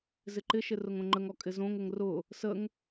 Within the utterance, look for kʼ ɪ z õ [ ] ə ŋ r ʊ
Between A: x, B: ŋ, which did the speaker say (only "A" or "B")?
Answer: B